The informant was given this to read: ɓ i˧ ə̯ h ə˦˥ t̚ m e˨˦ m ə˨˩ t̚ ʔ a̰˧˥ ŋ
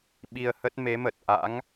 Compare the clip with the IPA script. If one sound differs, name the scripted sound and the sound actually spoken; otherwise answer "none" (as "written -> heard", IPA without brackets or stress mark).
none